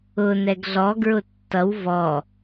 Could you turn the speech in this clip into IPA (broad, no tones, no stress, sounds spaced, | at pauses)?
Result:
ʊ n ɛ ɡ ɮ ɔ ɡ ɹ ʊ tː ʌ w v ɔ